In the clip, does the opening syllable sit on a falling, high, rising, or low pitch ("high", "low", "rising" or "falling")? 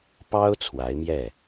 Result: high